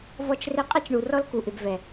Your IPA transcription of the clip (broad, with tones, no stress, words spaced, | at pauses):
vɔ˦t͡ʃre˦ qʼɛ˦t͡ʃɳu˨rɔ˦l ku˨ʔɪ˨bvɛ˨